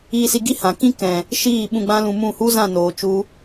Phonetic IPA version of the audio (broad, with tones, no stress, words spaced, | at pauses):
iː˧si˧ɡi˦ hã˨kĩ˦ kɛ̃˨ | ʃiː˦˨ ɓũ˧ɡ͡bã˦lũ˧mũ˦˨ hu˦zã˦˨noː˨ t͡ʃu˦